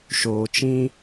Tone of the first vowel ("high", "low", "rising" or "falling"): low